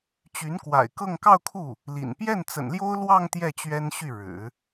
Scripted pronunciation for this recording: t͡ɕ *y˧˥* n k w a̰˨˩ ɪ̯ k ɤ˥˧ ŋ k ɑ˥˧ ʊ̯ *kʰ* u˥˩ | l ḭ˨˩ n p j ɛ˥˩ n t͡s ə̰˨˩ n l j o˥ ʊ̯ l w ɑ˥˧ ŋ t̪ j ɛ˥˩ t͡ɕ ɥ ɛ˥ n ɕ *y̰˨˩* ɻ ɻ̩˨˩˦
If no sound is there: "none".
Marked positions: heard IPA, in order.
y˧˥, kʰ, y˥˩

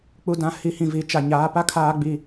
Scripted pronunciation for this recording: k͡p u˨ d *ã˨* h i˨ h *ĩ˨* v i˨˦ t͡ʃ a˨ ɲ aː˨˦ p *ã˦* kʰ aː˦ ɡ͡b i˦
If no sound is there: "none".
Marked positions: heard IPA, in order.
ã˨, ĩ˨, a˦

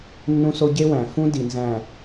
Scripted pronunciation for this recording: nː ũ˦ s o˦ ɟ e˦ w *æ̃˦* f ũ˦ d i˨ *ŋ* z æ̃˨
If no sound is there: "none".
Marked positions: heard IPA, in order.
æ̃˨, n

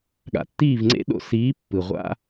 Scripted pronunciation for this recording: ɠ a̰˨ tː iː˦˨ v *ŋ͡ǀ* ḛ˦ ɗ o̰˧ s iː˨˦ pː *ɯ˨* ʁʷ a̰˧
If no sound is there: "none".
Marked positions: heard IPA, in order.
ŋ͡ǀ, ɯ˨

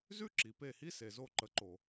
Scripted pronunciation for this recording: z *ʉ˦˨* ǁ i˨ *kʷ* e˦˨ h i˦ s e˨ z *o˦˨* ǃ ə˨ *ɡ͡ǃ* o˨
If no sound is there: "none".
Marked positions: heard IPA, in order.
ʉ˦, p, o˦˨, ǃ

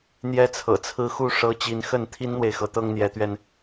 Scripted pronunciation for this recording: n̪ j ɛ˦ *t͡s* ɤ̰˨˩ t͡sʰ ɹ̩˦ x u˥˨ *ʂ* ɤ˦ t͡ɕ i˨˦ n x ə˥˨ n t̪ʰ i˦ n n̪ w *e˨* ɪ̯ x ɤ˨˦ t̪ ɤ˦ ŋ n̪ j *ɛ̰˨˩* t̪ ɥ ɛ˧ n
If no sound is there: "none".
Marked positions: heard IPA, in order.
t͡sʰ, ʂ, e˨, ɛ˨˦

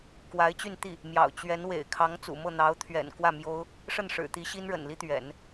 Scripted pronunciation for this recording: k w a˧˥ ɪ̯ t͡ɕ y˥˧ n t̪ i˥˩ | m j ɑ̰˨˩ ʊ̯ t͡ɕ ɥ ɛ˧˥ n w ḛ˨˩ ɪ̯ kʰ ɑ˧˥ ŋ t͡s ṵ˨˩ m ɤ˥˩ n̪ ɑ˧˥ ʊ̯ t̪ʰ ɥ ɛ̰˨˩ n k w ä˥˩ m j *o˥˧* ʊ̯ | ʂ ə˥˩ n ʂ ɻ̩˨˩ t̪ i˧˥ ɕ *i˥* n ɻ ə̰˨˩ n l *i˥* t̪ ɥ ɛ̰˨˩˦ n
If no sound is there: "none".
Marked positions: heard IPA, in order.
o˥, i˥, i˥

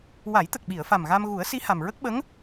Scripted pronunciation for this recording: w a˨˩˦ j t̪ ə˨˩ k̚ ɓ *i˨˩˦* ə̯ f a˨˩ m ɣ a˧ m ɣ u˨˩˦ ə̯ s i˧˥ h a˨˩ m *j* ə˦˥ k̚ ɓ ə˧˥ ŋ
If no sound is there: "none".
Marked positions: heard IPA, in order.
i˨˩˨, ɹ

